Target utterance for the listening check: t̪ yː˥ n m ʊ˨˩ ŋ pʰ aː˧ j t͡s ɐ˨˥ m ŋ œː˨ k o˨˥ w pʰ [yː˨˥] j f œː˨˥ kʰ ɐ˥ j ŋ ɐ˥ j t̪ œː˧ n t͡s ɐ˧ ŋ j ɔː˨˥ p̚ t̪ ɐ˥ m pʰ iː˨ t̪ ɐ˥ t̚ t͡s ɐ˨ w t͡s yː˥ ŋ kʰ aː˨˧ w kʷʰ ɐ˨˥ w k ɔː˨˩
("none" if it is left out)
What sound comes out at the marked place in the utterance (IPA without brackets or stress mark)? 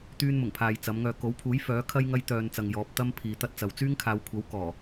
uː˨˥